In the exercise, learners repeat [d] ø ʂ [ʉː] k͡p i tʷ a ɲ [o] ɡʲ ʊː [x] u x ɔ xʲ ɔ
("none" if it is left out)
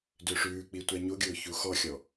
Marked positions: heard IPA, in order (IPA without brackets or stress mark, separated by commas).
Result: d, ʉː, o, ç